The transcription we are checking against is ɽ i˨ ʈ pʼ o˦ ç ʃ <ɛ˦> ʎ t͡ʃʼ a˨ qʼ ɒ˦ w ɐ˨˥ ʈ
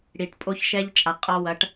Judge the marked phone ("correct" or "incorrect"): correct